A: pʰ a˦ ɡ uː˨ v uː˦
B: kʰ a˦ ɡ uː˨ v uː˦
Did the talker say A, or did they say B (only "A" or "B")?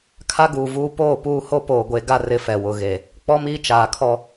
B